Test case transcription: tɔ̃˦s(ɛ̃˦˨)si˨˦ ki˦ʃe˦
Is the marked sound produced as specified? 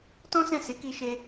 yes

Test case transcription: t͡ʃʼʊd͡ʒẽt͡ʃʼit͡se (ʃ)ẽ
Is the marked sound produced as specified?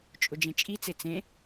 no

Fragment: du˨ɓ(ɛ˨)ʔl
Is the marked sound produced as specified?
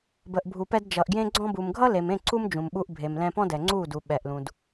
yes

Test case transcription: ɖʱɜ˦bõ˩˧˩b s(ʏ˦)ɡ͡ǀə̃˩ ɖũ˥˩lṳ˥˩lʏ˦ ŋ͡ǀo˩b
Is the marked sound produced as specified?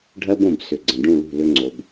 no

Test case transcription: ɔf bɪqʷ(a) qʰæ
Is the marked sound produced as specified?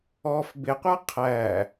yes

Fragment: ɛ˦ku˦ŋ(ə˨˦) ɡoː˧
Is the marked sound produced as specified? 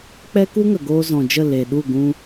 no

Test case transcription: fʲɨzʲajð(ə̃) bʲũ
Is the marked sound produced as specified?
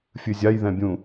no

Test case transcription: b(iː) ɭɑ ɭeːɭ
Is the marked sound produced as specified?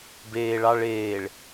no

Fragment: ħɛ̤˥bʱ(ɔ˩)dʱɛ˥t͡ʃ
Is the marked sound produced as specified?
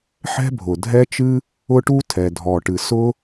no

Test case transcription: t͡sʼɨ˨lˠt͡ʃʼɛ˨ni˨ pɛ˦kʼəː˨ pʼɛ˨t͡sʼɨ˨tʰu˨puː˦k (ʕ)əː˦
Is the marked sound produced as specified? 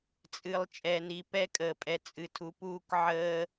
yes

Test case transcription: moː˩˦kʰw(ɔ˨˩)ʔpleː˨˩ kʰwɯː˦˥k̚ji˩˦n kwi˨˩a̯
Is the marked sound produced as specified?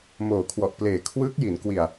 yes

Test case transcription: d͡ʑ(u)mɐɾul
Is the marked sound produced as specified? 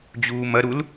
no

